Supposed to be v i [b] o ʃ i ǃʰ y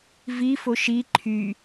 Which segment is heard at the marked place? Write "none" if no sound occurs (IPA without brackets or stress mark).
f